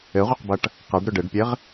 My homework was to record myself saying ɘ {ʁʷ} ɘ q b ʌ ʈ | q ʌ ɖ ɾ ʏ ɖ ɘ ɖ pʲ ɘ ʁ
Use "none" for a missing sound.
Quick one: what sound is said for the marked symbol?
ʁʷ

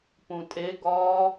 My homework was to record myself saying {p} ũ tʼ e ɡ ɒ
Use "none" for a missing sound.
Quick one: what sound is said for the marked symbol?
p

